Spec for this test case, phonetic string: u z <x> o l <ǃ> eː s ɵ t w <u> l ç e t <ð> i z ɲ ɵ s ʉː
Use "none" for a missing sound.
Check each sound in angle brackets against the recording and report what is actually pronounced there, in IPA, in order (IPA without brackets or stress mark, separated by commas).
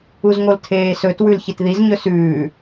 ŋ, tʰ, ʉ, ð